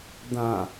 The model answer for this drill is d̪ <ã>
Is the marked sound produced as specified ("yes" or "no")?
yes